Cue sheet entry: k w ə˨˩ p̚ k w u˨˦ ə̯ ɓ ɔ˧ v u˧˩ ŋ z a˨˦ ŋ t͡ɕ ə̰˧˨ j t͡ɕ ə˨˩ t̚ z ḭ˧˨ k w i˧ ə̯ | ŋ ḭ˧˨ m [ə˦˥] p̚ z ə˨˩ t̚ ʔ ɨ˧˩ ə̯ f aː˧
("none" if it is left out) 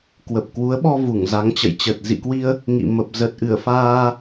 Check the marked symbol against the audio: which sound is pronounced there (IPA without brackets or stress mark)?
ə˨˩